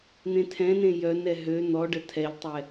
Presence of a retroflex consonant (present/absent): present